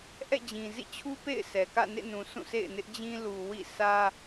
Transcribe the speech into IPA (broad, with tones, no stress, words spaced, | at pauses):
ʔɛ̰˦˨d͡ʑĩ˨zḭ˦˨t͡ɕʰu˦ pḛ˦˨ɪ̯ sɛ˨kä̰˦˨nḛ˦˨ nũ˨ sʰũ˦˨ sḛ˦˨ɪ̯nɪ˦ʔd͡ʑĩ˦ lu˨wḭ˦˨sä˦